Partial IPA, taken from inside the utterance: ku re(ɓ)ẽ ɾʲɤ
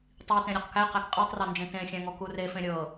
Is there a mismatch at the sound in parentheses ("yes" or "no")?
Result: yes